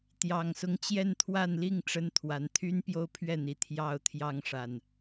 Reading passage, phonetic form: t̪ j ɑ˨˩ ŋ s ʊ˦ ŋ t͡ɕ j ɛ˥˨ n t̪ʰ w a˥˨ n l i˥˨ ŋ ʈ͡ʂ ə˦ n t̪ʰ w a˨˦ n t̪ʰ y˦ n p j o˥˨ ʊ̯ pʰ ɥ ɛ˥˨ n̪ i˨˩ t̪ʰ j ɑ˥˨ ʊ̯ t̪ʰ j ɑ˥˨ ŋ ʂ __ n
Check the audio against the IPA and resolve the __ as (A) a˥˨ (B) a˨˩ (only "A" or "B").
B